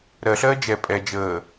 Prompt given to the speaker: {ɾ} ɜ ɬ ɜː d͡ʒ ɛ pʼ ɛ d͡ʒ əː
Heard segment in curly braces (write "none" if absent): ɾ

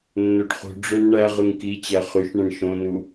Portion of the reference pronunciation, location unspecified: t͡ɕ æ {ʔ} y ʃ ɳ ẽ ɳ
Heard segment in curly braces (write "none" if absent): χ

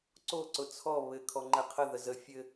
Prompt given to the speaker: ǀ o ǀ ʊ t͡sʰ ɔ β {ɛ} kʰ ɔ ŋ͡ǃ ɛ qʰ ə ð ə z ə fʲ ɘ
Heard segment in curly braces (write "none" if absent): ɘ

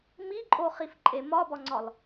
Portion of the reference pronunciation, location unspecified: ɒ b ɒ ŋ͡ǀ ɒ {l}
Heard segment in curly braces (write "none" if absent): l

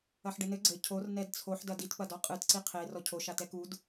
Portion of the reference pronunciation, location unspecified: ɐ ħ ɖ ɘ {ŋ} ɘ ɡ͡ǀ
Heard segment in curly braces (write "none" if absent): n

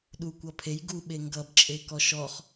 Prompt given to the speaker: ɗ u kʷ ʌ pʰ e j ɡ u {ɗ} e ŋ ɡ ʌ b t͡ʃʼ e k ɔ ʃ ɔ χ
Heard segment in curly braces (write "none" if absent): ɓ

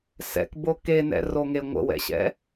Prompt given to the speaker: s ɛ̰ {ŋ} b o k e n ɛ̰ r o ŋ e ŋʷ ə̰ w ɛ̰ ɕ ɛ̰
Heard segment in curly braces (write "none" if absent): k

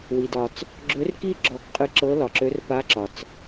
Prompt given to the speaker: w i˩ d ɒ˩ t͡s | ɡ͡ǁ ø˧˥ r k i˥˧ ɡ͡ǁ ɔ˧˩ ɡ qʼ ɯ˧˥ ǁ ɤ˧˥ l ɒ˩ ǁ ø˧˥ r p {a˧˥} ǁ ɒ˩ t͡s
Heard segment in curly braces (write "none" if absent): a˧˥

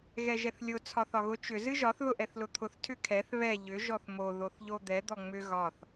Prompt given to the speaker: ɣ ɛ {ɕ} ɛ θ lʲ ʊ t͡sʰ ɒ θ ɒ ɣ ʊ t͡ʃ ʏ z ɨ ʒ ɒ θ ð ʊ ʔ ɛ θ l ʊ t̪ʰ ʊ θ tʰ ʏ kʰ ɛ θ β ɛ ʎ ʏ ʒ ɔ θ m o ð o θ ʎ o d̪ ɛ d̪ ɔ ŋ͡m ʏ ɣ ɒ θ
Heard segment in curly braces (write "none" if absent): ʒ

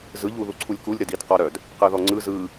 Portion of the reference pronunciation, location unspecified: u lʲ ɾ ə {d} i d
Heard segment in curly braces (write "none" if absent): d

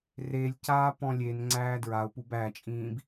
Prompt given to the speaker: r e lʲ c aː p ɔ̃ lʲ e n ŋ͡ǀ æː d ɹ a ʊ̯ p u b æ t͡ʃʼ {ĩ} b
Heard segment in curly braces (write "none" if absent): ĩː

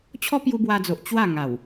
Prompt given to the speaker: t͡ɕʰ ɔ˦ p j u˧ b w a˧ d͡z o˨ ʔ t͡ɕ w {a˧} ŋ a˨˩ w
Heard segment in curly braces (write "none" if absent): a˥˧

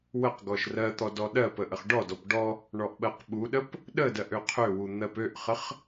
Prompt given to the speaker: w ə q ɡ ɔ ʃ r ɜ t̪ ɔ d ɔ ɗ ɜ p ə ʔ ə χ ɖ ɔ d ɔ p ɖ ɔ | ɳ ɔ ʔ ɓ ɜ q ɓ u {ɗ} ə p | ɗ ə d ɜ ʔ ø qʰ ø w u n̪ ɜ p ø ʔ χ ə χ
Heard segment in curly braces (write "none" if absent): ɗ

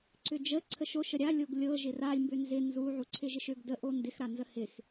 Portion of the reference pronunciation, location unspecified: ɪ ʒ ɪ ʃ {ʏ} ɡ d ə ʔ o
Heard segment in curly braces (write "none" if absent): ʏ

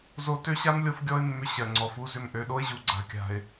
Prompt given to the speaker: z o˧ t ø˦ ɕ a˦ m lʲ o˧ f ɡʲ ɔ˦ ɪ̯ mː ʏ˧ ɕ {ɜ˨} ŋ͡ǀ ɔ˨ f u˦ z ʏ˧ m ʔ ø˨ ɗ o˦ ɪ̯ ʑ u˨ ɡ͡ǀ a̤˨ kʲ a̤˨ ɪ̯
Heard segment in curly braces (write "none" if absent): ɜ˨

